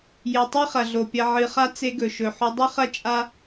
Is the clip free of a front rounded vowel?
yes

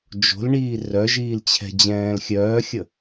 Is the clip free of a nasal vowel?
no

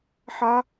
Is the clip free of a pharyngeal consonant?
no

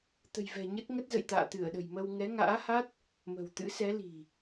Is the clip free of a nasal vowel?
yes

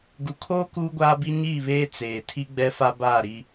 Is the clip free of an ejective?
yes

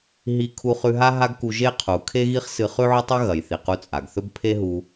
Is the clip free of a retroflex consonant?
yes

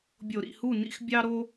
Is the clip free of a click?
yes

